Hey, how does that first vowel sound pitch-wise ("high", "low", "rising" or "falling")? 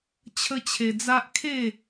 high